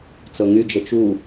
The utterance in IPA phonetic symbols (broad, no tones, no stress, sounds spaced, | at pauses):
t͡s ɤ ŋ y d͡ʒ ə t͡ʃ u